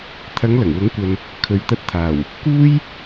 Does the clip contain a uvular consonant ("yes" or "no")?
no